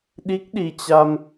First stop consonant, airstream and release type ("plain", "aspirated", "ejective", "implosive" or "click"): implosive